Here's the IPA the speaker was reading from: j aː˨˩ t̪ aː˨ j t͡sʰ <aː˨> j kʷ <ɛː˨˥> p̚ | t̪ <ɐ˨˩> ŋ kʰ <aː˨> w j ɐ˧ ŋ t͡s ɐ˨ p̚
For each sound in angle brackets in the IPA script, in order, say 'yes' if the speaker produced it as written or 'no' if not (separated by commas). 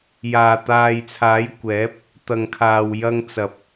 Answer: no, yes, yes, no